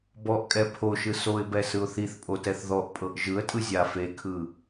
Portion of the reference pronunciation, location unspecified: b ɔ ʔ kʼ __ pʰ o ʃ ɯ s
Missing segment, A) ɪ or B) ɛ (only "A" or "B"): B